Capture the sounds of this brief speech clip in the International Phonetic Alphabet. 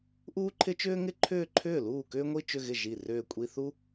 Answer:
ʔuː˥ǃʰɪ˥t͡ʃʏː˥ ŋɪ˥ǃʰʏː˥˧ǃʰʏː˥˩ luː˥˩kʏː˥ŋʷi˥˧ t͡ʃʏ˥˧ɣɪ˥˩ ʒi˥˩ rʏː˥˧kʷʼi˥ θu˥

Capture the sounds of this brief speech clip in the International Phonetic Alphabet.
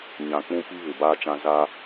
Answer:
ɲã˨k͡pũ˦ pi˦ βɪ˨baː˦t͡ʃã˦ za˦

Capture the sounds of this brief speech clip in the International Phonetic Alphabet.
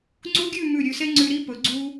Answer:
ŋ͡ǀu˥ɡʲʉ˥˧ mʉ˧˩ɾʲʉ˧˩se˥ ŋ͡ǀʉ˧ ɾi˥pɵ˩˧ ɡ͡ǀu˧

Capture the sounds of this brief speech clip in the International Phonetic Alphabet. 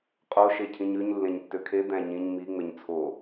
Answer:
qʼo ʃecʰĩɲʉɲ lːẽɲtːøkʰe d̪æ̃ɲĩɲ mi ŋ͡meɲt͡sʰo

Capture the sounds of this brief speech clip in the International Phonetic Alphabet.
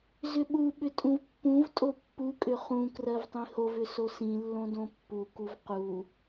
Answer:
zʏɓuɓʏ tʼũvpːũvtʼo pːukʼʏ χũ krɜvtˤĩhovʏ sosĩlːõ dõpːukuv qu

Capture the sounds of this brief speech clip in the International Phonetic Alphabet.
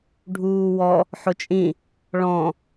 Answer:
ɖʱuːwɔ | ħʊt͡ʃʼĩ | ɭɔ̃

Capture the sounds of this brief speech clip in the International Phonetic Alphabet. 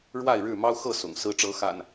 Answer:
ɻwa˥˨ɪ̯ɻɻ̩˥˨ mɑ˦ʊ̯xɤ˥˨sʊ̰˨˩ŋ sɹ̩˨˦ʈ͡ʂɤ˨˦ xa̰˨˩n

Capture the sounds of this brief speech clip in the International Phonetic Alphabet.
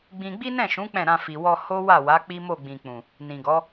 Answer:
ɡ͡bĩ˧ ɡ͡bi˦nɛ̃˦˨ʃũ˨˦ k͡pɛ̃˦˨ɾã˧fi˨ wɔ˧ ho˦wa˦˨wa˨˦ k͡pi˦mo˦˨ɡ͡bĩ˨ k͡pũ˨ | nĩ˨ɡɔ˨˦

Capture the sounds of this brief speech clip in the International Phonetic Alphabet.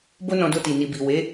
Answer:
bo˦nɔ̃˧do˧ti˨ ni˨bi˨ we˨˦

